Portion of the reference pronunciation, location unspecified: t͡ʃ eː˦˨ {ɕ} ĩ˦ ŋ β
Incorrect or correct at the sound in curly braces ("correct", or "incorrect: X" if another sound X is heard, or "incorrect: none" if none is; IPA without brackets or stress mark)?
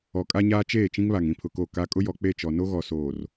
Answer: incorrect: t͡ʃ